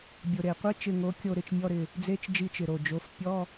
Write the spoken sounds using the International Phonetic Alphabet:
bʲ ʊ˨˩ ɾ e˨˩ qʷ e˥ t͡ʃ ɪ˦˨ ŋ o˨˥ kʲ o˦˨ ɾ ɪ˦˨ t͡ʃ mʲ ɔ˧˥˧ ɾ ɪ˦˨ | d͡z e˧˥˧ t͡ʃ d͡ʒ i˦˨ t͡ʃ ɪ˨˩ ɾ o˨˩ d͡ʒ o˨˥ f pʲ ɔ˧˥˧

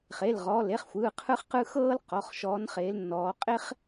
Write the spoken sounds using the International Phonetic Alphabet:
χ e˩˧˩ l ʁ ɔː˩˧˩ l e˥˧ χ xʷ ɯː˩˧˩ qʰ ɯ˥ χ q ɯ˥ x ɤː˥ l q ɔ˩˧˩ χ ʃ ɔː˨˦ n χ eː˨˦ l nː ɔː˨˦ qʼ e˥ χ

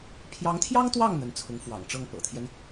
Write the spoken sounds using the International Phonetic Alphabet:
pʰ j ɑ˧˥ ŋ t̪ʰ j ɑ˥ ŋ t̪ w ɑ˥˩ ŋ n̪ ə˧˥ n t͡sʰ ʊ˧˥ ŋ f w ɑ̰˨˩ ŋ ʈ͡ʂ ɤ˥˩ ŋ p ɤ̰˨˩ t̪ʰ j ɛ˦ n

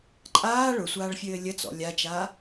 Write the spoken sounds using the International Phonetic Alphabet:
ǃʼ aː ɭ ʊ sʷ aː ɭ fʲ ɘː lʲ ə t͡s ɔ̰ lʲ a t͡ʃ aː

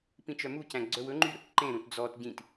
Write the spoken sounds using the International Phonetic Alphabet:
p ĩ t͡ʃ œ m u c æ̃ ɡ͡ǀ œ w ɵ ŋ͡ǃ y ɾ ɵ k ǃ ẽ ɾ ũ t d͡z ɔ t ɟ ĩ t

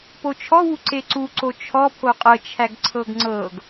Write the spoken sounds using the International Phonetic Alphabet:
p o t͡ʃʰ ɔ w u ǀ e ǀ u ǀ o t͡ʃʰ ɔ pʰ o qʼ ɤ t͡ʃʰ æ ɡ ǀʰ ɤ ɡ ŋ͡ǀ ɤ ɡ

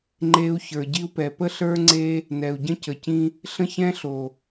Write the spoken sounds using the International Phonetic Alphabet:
ŋ͡ǃ e˦ u̯ ç ə˞˨ ɟ i˦ u̯ p ɛ˨ p ə˦ ɬ ə˞˦ ŋ͡ǀ e˦ | n ɛ˨ u̯ ɟ ə̃˦ c ə˨ c ĩ˦ | ɬ ə̃˦ ç ɛ̃˦ ɬ o˨

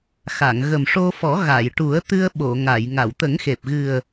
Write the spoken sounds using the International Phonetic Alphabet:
x a˨˩˨ ŋ ɣ ə˨˩ m ʂ o˧ f ɔ˨˩˦ ɣ a˨˩˨ j ʈ u˨˩˦ ə̯ t̪ ɨ˧ ə̯ ɓ o˨˩˨ ŋ a˨˩˨ j ŋ a˨˩˨ w t̪ ə˨˩˦ ŋ x e˨˩ p̚ ɣ ɨ˨˩ ə̯

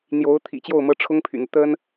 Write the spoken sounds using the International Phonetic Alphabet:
n̪ j o˧˥ ʊ̯ t̪ʰ ḭ˨˩ t͡ɕ j o˥˩ ʊ̯ m ɤ˥ ʈ͡ʂʰ ʊ˥ ŋ pʰ y̰˨˩ n̪ u˦ t̪ ə˥ n

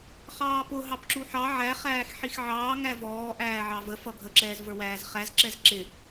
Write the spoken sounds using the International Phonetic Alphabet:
χ ɑː p ʊ ɦ ɑ p ǁ u ħ ɑ ʕ æ χ æː x ħ i x ʕ ɑː ŋ æ v ɔː ʔ æː ʕ ɑ v ə f ʌ ɡʱ ə ǁ ɛː z v ə˞ w æː z χ æ z ǁ ɛ z ǁ ɪ

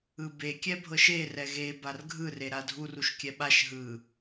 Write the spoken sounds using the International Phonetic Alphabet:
ɯ b e kʲ ɛ bʱ ɤ ʃ e r ɛ ɣ e b a r ɡʱ ɯ r e ɾ a dʱ u r u ʃ kʲ ɛ ɓ a ʃ ɦ ɯ

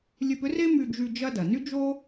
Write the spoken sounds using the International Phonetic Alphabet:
lʲ ø˧ p ʏ˥ r e˥ m y˧ d͡ʒ y˧ d͡ʒ ɐ˥ d ɐ˩ n y˥ d͡ʒ o˥

